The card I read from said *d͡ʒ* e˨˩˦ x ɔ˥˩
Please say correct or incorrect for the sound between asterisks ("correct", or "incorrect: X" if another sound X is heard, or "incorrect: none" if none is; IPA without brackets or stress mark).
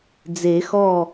incorrect: d͡z